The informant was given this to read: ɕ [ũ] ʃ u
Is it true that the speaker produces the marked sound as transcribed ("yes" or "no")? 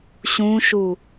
yes